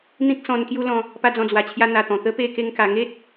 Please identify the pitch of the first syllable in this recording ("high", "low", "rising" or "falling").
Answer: high